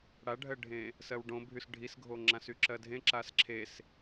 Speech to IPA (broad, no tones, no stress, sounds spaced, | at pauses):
ɽ a ɖʱ ɜ ɖʱ ẽ | s ɜ w ɖ õ bʱ y s ɖʱ i s ɡʱ o ŋ͡ǁ ã s y ǁ ɜ dʱ ẽ ǁ a s ǁʰ e s